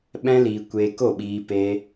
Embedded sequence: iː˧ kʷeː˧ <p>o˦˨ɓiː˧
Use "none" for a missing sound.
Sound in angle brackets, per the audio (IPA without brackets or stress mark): k